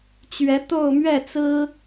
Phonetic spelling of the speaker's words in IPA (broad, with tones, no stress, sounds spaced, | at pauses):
t͡ɕ ɥ ɛ˧˥ t̪ o˥˧ ʊ̯ m ɥ ɛ˥˩ t͡s ɹ̩˥